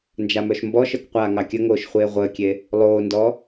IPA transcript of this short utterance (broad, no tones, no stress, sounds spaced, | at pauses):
n d͡ʒ a m œ ʃ m b ɔ ʃ œ k qʷ aː ŋ ɑ kʲ ə ŋ oː ʃ χʷ eː ʁʷ əː kʲ e | lˠ oː n d ɔ